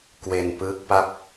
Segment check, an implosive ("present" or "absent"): absent